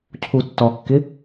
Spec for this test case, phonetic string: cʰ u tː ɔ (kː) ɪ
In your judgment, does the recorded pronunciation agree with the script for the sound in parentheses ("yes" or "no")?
yes